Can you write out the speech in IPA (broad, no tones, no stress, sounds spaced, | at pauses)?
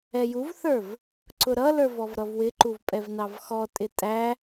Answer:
ɛ j u v θ ə˞ v | ǀ ʊ ɾ ʌ l ə˞ v ɔ v ɾ ʌ v w ɪ ǃ u v pʼ ɛ v n ɑ v x ɔ tʼ ɪ tʼ æ